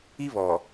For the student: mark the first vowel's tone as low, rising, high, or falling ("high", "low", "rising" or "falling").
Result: high